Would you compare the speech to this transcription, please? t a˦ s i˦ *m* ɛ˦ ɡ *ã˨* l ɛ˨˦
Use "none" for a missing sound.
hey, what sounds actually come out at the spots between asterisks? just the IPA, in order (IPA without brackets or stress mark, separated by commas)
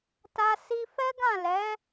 f, ã˦˨